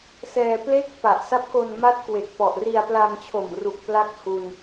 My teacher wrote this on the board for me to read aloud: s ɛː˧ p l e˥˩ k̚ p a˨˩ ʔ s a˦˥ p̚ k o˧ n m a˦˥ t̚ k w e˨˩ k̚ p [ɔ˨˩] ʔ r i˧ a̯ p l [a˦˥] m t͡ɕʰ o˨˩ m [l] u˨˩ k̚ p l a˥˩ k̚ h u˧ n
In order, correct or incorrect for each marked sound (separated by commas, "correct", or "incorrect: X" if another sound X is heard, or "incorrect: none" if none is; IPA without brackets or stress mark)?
correct, incorrect: a˧, incorrect: r